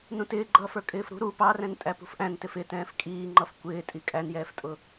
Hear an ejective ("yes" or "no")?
yes